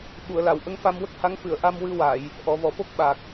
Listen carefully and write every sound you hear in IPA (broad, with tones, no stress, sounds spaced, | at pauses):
ɓ u˨˩˨ ə̯ l a˨˩˨ w ʔ ə˧˥ ŋ f a˧ m w ə˦˥ k̚ h a˧˥ ŋ f ɨ˨˩˨ ə̯ ʔ a˧ m w ɨ˧ w a˨˩˨ j | ʔ ɔ˨˩˨ v ɔ˨˩˨ f o˦˥ k̚ ɓ a˨˩ k̚